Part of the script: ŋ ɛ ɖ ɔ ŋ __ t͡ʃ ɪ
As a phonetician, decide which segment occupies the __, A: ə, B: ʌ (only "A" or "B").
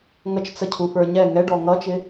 B